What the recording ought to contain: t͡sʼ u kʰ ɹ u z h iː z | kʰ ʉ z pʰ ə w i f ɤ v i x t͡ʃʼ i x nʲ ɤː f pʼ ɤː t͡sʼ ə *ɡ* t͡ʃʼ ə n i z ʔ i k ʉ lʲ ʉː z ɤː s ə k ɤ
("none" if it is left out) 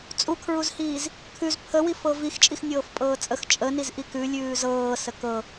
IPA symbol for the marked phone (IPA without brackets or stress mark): x